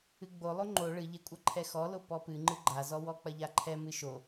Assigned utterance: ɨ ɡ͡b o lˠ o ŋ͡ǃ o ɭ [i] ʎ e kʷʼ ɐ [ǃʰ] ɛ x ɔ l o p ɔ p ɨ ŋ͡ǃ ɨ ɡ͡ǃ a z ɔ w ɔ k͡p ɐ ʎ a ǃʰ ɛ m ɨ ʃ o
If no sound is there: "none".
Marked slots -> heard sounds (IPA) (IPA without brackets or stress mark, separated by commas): ɨ, ǃʰ